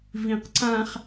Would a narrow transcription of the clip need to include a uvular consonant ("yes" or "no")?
yes